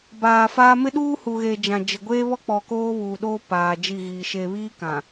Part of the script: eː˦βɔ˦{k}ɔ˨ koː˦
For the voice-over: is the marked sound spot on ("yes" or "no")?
no